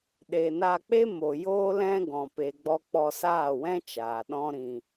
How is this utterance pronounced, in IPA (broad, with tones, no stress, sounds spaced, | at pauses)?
ɗ e˨ n a˧ k͡p e˦ m o˨ j oː˦ l ɛ̃˦ ɡ ɔ̃˨ p e˨ ɡ͡b ɔ˧ k͡p ɔ˧ s aː˦˨ w ɛ̃˦ t͡ʃ aː˨ ɗ ɔ̃˦ ɾ ĩ˧